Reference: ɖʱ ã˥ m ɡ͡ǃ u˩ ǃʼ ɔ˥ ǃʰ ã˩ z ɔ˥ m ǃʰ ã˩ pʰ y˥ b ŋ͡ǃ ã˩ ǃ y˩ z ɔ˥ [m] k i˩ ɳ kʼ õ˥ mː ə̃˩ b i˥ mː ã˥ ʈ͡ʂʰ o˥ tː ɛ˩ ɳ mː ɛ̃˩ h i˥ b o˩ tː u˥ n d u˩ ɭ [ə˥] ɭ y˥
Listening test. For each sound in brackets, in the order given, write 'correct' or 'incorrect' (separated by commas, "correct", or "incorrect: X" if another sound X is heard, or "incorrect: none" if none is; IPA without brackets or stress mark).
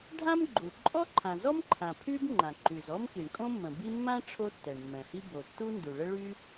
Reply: correct, correct